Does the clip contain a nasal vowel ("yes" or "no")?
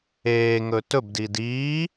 no